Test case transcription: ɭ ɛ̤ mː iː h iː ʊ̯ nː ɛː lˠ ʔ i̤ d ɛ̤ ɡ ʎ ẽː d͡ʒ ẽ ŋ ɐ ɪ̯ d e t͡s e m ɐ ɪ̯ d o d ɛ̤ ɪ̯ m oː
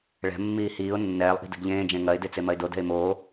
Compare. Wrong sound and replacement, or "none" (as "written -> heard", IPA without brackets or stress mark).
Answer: none